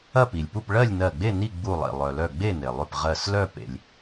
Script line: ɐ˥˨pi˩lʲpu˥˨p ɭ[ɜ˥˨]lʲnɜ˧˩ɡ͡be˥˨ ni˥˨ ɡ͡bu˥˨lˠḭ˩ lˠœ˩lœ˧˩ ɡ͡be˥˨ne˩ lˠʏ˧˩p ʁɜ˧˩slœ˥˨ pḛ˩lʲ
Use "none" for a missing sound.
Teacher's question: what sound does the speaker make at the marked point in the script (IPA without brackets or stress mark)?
ɜ˥˨